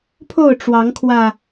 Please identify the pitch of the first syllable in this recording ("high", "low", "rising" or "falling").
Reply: falling